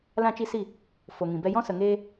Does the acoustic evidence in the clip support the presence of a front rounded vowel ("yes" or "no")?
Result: no